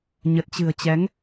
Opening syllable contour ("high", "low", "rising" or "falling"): low